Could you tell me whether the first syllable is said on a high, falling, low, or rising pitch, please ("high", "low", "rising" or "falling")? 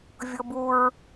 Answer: high